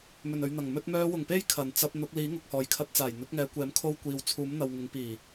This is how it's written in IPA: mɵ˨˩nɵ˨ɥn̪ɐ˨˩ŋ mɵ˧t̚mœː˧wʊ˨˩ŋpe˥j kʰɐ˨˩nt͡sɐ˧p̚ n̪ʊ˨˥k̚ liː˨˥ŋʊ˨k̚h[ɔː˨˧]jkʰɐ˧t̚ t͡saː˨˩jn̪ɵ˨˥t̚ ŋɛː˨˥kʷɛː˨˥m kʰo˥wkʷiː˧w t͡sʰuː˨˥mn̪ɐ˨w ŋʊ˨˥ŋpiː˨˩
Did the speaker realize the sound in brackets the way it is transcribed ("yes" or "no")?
no